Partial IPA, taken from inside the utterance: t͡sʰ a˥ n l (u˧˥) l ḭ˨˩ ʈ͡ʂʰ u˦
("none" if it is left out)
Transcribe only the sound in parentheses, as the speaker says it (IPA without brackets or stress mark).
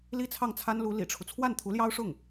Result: u˧˥